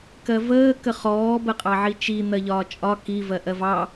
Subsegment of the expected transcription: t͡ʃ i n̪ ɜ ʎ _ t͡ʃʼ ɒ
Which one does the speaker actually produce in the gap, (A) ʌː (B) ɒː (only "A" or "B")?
B